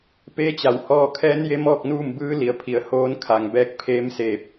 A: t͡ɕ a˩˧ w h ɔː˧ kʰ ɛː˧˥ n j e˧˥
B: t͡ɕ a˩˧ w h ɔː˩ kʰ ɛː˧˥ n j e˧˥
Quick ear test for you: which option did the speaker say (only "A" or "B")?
A